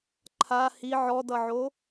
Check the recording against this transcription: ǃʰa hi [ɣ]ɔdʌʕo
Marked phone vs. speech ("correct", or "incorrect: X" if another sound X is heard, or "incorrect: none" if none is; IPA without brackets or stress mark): incorrect: ʕ